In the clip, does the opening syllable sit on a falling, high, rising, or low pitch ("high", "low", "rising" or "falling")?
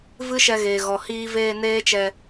high